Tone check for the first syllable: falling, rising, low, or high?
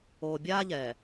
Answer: low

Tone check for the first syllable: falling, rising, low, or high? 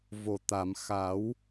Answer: low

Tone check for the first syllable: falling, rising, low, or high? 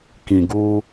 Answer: low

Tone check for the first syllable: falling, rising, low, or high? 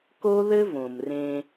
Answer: high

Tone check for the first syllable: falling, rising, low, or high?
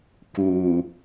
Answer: low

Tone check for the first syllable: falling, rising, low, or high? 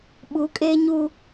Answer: rising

